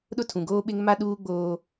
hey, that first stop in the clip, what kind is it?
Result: implosive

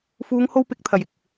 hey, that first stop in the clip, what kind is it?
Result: plain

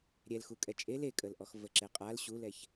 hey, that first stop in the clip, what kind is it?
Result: ejective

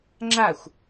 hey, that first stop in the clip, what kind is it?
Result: click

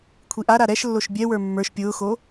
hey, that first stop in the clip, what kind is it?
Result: aspirated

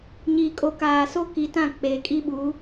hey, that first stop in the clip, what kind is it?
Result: ejective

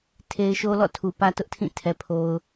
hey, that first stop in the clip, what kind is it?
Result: aspirated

